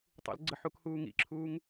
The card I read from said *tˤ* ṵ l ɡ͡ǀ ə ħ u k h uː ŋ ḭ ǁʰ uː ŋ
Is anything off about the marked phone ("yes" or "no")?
no